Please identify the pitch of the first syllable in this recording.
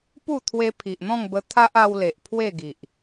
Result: falling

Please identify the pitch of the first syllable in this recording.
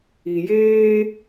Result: low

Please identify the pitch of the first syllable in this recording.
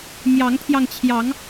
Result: rising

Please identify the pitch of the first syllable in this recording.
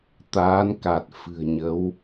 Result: rising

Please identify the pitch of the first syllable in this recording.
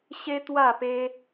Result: high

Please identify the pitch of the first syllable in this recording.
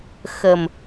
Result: low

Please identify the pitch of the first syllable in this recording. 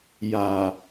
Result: low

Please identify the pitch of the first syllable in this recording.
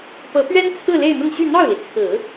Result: rising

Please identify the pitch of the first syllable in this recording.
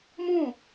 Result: falling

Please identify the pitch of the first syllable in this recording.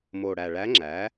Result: low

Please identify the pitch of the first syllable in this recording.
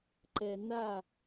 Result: low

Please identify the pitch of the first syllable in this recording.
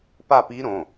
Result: falling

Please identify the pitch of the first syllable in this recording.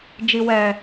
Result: low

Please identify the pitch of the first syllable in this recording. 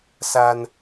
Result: high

